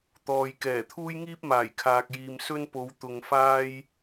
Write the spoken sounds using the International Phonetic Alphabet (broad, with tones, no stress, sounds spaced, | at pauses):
t̪ ɔː˨ j k ɛː˨˩ t̪ʰ uː˥ j ŋ iː˥ p̚ m aː˨˩ j kʰ aː˨ k̚ j iː˨ m s ɵ˥ n p o˨˧ w t̪ ʊ˨ ŋ f aː˧ j